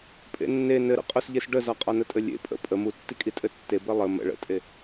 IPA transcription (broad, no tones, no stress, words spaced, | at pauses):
pʼḛnːe nɘɾə̰ qʼosʎesɖəzɒ qʼɒnətʼɘlʲḛ pʼə̰ pʼə mutːikʼi tʼɘtːe bɘlˠə mə̰ ɭə̰tʼe